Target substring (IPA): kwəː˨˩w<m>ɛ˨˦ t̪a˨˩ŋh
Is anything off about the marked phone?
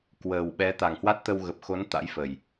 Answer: yes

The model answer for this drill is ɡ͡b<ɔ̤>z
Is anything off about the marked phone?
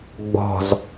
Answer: no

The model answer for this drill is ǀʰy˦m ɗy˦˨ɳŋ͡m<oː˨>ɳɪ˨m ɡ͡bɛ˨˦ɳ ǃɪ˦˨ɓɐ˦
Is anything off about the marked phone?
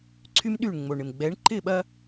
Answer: yes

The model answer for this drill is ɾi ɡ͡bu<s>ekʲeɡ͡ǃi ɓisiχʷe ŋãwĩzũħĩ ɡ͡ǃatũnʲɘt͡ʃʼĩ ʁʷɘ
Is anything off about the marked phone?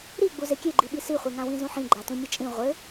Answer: yes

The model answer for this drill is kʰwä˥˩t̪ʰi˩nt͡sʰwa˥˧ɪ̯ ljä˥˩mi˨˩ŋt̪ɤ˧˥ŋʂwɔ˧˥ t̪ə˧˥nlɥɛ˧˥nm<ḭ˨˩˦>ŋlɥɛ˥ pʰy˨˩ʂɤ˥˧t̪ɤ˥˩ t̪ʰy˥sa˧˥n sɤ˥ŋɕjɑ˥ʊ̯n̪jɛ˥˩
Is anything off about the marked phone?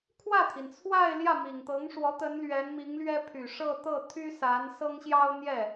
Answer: yes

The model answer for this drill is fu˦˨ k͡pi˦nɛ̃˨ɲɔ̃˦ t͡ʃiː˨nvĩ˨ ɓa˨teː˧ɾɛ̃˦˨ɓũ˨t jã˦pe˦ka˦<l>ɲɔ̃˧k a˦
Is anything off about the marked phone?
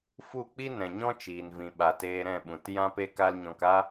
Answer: no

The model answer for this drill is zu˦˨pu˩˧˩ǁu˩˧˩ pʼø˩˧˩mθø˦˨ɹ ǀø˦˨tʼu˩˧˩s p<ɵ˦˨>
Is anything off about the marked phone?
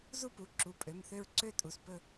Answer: no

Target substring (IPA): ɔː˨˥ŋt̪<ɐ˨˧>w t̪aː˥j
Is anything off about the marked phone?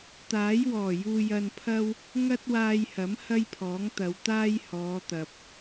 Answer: no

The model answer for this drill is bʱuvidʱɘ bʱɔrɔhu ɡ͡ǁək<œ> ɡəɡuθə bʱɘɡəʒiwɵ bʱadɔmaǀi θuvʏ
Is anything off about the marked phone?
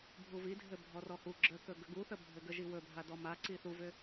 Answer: yes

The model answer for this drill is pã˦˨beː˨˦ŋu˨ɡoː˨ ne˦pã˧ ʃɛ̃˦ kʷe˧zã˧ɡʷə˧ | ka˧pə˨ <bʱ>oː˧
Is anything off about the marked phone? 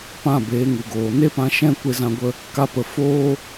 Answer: yes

